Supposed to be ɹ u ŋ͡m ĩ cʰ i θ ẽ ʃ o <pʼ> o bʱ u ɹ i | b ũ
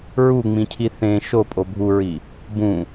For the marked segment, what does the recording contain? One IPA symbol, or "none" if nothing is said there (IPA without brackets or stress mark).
pʼ